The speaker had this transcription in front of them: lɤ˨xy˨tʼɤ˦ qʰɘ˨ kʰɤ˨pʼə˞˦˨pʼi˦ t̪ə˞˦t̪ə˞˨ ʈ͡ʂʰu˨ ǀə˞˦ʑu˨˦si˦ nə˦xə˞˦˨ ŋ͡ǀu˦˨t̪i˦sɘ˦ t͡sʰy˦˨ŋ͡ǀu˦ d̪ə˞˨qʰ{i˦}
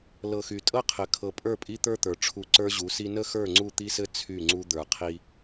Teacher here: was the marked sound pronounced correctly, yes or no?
yes